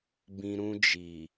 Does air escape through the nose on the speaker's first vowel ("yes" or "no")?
yes